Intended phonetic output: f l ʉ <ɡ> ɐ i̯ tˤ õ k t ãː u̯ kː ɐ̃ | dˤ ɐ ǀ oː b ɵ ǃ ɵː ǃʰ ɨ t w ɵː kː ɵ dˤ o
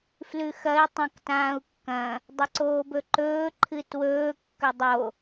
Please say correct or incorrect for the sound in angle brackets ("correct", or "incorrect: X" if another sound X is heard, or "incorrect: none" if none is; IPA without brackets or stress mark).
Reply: incorrect: x